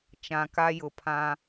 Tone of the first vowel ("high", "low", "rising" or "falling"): low